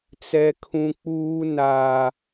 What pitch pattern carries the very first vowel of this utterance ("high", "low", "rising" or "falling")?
high